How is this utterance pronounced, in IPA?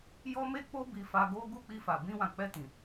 j ɔ˦ m e˦ k͡p o˦ b i˧ f a˧ ɡ o˦ ɡ u˦˨ k͡p i˧ f a˨ b ĩ˧ w ã˨ k͡p ɛ˧ t ĩ˨

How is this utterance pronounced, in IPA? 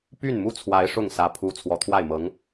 p y˥˩ n m u˥ t͡sʰ w a˧˥ ɪ̯ ʂ ʊ˥˩ ŋ s ä˧˥ pʰ u˧˥ t͡sʰ w ɔ˨˩ t̪ʰ w a˥˩ ɪ̯ m ɤ˧˥ ŋ

